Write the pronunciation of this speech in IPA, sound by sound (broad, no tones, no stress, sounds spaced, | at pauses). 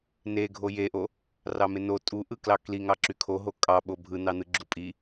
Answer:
n e ɡʱ o j e ʔ o | r ɑ m e n o tʼ u ʔ ɯ k l ɑ k l i ŋ ɑ ǁ y kʰ o ɦ o kʼ ɑ ɓ o bʱ ɯ n ɑ n ɯ ɡ͡ǁ u pʼ i